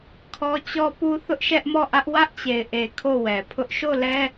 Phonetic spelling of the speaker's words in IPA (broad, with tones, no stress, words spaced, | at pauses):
kʰɔ˦t͡ɕɔ˦pu˦ θʊ˦ʔʃɛ˦ʔmɔ˦˨ʔä˦ʔ wä˦ʔt͡ɕe˨ɪ̯ʔe˨ kʰo˦˨wɛ˨pʰʊ˦ʔ ʃo˦˨lɛ˦